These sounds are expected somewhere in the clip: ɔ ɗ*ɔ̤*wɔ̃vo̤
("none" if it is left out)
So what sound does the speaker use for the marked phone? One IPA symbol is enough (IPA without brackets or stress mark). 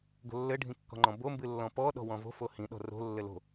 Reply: ɔ̤